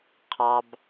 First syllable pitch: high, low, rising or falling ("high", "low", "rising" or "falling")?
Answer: low